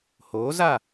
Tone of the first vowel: rising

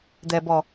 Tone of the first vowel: low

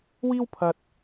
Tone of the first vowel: high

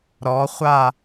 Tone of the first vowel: rising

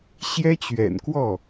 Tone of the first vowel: high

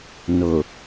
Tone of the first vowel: low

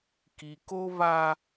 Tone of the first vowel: low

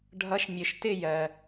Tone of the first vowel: rising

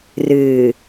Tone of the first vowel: low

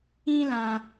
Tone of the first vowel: high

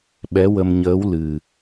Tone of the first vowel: rising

